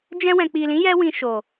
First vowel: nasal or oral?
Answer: nasal